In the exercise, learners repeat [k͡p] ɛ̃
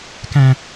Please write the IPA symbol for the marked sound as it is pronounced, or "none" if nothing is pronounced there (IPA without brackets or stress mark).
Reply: k